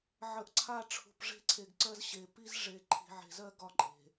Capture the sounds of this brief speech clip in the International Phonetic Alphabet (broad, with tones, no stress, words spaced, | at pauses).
ʕə˨ʔǀʰa˦˨ ʈ͡ʂʰṳ˨pʐe̤˦ǀʰe˨ɡǀɜ˦z ɕe˨ pi˦z ʐe˨ ǃʰi̤˨ʕe̤˨zɜ˦ ɡɒ˦ǃʼe̤˨